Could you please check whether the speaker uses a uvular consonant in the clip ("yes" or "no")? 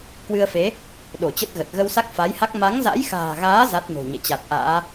no